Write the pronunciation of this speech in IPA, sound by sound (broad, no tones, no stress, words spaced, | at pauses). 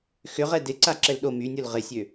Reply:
xʏʁɛ dɪǀa ǁɛlɗo mynʲol ʁɪsʲø